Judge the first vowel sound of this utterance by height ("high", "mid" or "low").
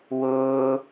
high